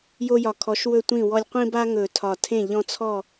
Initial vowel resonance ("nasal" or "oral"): oral